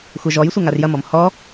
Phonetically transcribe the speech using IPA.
xʷɛʒɔjsʷɘ ŋarjɐmɔm hɔ

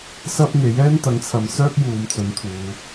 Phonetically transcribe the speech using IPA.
sɐ˥p̚ŋe˨˥j ɛː˥nt̪ɐ˨˥ŋt͡sʰɐ˨˧msœː˥k̚ juː˨˧mt͡sɵ˨˥nt̪ʰuː˨˧

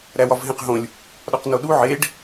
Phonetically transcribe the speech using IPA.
ɾæwɒvɦẽqɦõlʲ | ɗɒqnoɗu ʕeɖ

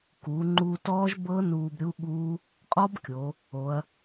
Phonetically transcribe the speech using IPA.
kuː˩˧ŋ͡ǃuː˧tɔː˦˥ʒ bɤ˦˥ nuː˧bɾʲu˦˥ɠuː˦˥ | qʼɔ˦˥bkʲo˩˧ | o˩˧ɐ̯

